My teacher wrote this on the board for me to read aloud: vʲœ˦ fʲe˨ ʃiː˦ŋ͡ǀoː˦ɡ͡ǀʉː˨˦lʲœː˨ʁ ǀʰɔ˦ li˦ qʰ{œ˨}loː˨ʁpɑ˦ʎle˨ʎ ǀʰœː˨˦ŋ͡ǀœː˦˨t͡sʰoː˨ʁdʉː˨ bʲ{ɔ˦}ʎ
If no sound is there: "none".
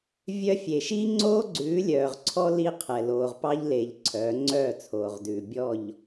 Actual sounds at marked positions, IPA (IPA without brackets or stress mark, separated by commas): ɛ˨, ɔ˦˨